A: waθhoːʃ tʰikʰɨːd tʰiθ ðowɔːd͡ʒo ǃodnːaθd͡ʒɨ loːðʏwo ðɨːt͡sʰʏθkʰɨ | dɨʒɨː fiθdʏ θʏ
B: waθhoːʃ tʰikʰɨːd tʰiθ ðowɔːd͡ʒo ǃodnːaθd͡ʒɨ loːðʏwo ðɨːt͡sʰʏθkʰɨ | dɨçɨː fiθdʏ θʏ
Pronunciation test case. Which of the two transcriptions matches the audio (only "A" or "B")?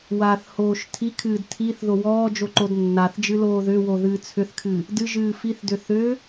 A